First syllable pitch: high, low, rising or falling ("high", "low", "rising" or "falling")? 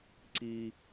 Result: low